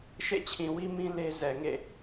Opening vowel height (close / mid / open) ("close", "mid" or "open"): mid